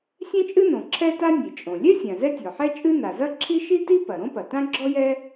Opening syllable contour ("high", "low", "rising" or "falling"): high